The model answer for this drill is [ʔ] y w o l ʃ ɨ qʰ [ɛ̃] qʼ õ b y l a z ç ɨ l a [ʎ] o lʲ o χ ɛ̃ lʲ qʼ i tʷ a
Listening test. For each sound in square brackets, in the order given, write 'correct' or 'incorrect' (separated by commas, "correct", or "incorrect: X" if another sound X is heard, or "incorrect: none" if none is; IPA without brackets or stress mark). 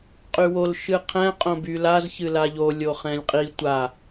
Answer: incorrect: qʼ, correct, correct